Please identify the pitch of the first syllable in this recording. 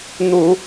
low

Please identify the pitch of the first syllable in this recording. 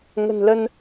low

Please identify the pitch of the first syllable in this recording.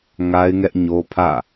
high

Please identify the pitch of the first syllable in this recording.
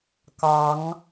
rising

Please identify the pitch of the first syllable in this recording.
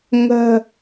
low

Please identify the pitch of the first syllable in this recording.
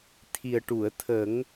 low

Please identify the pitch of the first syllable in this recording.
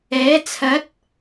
rising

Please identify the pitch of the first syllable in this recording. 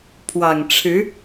low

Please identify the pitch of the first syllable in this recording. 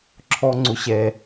high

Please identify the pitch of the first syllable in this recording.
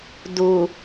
low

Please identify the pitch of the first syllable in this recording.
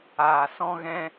low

